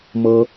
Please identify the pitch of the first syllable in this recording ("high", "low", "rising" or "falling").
high